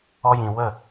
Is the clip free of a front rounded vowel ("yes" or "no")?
yes